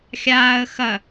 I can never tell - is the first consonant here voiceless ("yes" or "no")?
yes